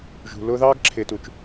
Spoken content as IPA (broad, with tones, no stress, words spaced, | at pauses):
ʒṳ˨lʊː˦ ðɑː˦ɡǁʰɪː˨tu˨t͡ʃ